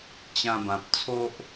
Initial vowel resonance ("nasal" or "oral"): nasal